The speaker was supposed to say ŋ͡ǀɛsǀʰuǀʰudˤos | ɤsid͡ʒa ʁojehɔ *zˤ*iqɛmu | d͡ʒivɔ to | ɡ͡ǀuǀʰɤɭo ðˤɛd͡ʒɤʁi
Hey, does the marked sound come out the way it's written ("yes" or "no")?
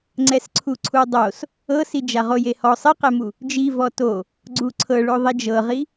no